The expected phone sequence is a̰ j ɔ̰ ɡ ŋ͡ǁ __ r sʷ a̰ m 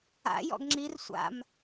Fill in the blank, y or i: i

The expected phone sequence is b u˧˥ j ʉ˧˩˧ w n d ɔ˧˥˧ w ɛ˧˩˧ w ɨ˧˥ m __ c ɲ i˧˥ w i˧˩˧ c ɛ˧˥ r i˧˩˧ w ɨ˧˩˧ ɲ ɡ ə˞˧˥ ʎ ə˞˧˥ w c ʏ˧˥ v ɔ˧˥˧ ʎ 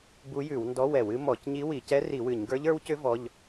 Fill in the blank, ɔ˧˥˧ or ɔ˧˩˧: ɔ˧˩˧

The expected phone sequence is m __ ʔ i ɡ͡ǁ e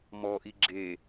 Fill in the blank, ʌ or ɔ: ɔ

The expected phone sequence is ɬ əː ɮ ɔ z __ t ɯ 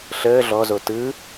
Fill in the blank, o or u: o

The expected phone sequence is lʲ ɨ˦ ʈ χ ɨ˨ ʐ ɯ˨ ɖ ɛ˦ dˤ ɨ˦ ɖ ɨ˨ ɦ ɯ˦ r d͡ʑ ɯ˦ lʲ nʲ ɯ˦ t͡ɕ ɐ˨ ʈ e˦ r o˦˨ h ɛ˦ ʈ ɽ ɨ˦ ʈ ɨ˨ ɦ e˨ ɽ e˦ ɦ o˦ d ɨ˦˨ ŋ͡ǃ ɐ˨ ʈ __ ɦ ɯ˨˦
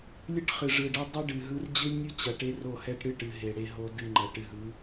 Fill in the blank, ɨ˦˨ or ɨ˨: ɨ˨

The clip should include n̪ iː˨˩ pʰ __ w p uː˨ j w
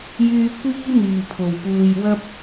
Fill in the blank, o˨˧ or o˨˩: o˨˩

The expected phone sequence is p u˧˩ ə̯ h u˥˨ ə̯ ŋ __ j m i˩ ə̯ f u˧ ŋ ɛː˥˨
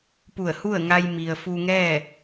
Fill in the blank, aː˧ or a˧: a˧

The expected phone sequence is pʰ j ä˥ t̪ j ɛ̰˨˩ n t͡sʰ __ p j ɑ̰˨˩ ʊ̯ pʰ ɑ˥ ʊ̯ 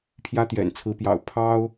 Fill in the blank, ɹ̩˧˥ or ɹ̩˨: ɹ̩˧˥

